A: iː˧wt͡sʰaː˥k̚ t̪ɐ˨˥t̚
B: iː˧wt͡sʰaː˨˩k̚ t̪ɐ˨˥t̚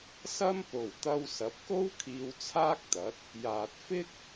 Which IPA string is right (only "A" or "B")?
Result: A